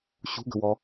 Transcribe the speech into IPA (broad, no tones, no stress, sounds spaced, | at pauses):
ɕ ṳ ɡ ə̤ w ɔ